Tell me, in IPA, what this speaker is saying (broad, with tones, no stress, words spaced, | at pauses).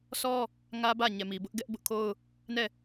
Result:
sʰɔ˦ | ŋä˦bä˦˨ ɲɛ˨mi˨bʊ˦ʔ ɡɛ˦ʔ bʊ˦ʔkʰo˦ʊ̯ | nɛ˦˨